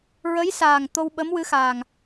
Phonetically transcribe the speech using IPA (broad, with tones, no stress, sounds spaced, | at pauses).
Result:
ɹ ə˧˥ j s aː˨˩ ŋ t̪ o˧ w ɓ ə˧˥ m w ɨ˧˥ x aː˨˩ ŋ